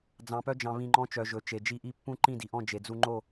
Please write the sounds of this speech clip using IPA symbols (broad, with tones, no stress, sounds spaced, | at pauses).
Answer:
d͡z ɑ̃˧ p œ˦ d͡ʒ ɑ̃˧ β ĩ˧ ŋ͡ǃ ɔ̃˦ t͡ʃ œ˧ ʒ ɵ˨˦ t͡ʃ e˨ d͡ʒ i˧ ʔ i˦ pː ũ˦ ǃ ĩ˦˨ d i˨ ʔ ɔ̃˦˨ d͡ʒ e˨ d͡z u˧ ŋ͡ǃ o˦˨